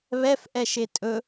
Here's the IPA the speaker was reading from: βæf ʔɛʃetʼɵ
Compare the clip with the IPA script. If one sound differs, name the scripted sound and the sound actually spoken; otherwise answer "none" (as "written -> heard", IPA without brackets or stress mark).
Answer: æ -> ɛ